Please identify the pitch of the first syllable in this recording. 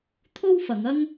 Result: high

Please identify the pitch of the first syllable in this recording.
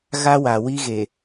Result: high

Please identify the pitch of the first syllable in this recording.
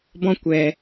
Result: high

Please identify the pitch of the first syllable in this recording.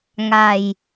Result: low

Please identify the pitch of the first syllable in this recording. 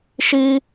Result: high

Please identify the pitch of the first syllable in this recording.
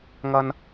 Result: high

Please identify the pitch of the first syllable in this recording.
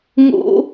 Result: high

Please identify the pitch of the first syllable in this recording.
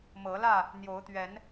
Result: rising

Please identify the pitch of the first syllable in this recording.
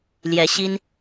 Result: rising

